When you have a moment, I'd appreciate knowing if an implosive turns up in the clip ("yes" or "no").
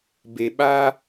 yes